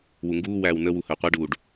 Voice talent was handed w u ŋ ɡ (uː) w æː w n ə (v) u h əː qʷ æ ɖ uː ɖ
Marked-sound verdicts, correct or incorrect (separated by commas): correct, incorrect